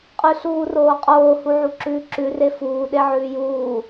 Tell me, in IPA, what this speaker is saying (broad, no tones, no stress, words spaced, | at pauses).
qʼʉɬuːroːqʼoː huʕuǁʉːǁʉ refuː ɗeʕʉːjuː